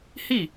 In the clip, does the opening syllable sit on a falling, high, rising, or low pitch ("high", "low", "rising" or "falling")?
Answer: falling